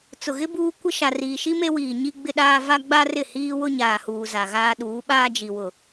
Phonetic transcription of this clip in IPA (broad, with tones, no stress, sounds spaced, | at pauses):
t͡s ʊ˨ ɣ ɪ˦ b uː˦ kʷ ɪ˦ ʃ a˨ r iː˨ ʃ i˦ m e˦ w iː˨ ɲ i˦ ɡ͡b ɪ˦ ɗ aː˦ v a˦ ɡ͡b a˦ r ɪ˦˨ h iː˦ w ʊ˦ ɲ aː˨ h uː˨ z a˨ ɣ aː˦ ɗ uː˨˦ ɓ aː˦ d͡ʒ i˨ w ʊ˨